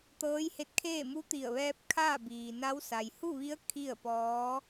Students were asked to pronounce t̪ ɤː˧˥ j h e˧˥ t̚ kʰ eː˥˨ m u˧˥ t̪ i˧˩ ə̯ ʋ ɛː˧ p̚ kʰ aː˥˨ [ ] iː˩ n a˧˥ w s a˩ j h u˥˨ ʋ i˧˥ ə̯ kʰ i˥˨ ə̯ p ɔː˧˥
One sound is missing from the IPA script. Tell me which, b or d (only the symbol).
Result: b